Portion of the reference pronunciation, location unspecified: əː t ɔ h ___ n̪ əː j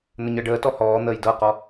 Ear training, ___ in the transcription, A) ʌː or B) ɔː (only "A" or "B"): B